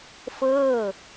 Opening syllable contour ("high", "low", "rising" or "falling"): falling